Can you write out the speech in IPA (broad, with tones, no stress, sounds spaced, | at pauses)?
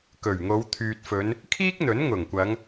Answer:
k ɵ˨˩ ɥ ŋ o˨˧ w t̪ʰ yː˨ t̚ f ɵ˨˧ n | kʰ iː˥ k̚ n̪ ɵ˨˥ n ŋ ʊ˨˩ ŋ kʷ ɐ˨˧ ŋ